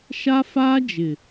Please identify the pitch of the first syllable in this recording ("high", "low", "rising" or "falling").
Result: high